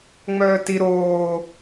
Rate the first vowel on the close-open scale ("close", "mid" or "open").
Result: mid